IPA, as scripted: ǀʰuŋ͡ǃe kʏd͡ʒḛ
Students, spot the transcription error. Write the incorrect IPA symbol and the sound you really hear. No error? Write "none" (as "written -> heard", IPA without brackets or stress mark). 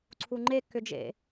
none